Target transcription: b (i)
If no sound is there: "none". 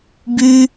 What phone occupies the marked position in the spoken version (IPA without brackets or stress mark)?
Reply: y